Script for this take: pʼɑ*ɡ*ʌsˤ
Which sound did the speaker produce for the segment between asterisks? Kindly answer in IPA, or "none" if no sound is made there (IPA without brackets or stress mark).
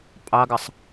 ɡ